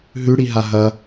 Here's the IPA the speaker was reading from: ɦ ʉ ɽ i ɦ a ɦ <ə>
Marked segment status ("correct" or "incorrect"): incorrect